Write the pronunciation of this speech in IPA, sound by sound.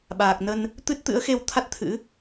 ɓ aː˨˩ k̚ n ə˧ n | t̪ ɨ˦˥ t̚ t̪ ɨ̰˧˥ ə̯ x e˧ w t̪ʰ a˦˥ t̚ t̪ʰ ɨ̰˧˥

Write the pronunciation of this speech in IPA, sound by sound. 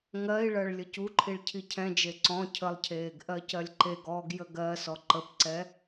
ŋ ɜ i̯ ɭ ɜ ɭ lʲ ə c u ǃʰ i ɭ cʰ i cʰ ɛ̃ d͡ʒ e ǀ ɔ̃ cʰ ə lˠ cʰ eː ɡ ʔ ɜ c ɜ lʲ ǃ e ɡ ɔː ɡ j ə ɡ ɜ s ɔ ǃ ə p ǀ ɛ

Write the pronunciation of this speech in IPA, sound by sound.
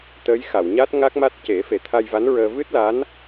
t̪ ə˧˥ j x a˨˩˨ w ɲ a˦˥ t̚ ŋ a˦˥ k̚ m a˦˥ t̚ c e˨˩˦ f e˨˩˦ t̪ʰ a˧ j v a˧˥ n ɹ əː˧ v ɨ˦˥ t̚ l a˧˥ n

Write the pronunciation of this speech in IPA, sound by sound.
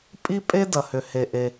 pʼ i˥ pʼ e˥ d ɐ˩ h ʏ˩ h e˩ ʔ e˩

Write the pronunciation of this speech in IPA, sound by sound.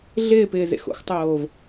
ɮ ɪː p ɪː z ḛ x o̰ x tˤ oː v

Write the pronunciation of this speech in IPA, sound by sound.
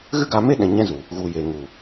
ɣ ɨ˦ ɡ a˧ m e˦ ɗ ɛ̃˨ ɲ ɛ̃˦ z u˨ | ɣ u˨ j e˨ ŋ u˨

